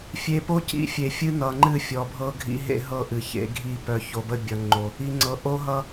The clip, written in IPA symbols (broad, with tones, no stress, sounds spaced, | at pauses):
fʲ e˨ p o˦ c ḭ˦ fʲ e˨ fʲ ɨ˦ n ʌ˨ ŋ͡ǃ ɨ˦˨ fʲ ɔ˨ bʱ ɤ˦ ɡʱ ḭ˦ ɦ ḛ˦ ɦ ɤ˦˨ ʔ ɨ˨ ç ḛ˦ ɡʱ i˦˨ p œ˨ ç o˨ b ə˦˨ bʲ ʌ˨ ŋ͡ǃ o˨ | i˨ ŋ͡ǀ ɤ˨ ʔ o˦ ɦ ʌ˦